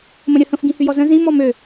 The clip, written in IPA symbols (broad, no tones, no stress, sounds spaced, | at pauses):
m ə̃ ɾʲ ə h ə̃ f ɡ ĩ h y j ɔ z ə̃ z ĩ m ɔ m ø